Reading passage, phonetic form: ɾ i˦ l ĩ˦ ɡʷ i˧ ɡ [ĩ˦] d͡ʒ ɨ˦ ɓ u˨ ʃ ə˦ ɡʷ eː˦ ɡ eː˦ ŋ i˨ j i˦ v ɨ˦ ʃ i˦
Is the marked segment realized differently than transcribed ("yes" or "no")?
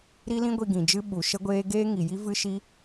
yes